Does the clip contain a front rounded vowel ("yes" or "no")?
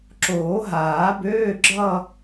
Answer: yes